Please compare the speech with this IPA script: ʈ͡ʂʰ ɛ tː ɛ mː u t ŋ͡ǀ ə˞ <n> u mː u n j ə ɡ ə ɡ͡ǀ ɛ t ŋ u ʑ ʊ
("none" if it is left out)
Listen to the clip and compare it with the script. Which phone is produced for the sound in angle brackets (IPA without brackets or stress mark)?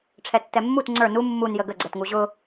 n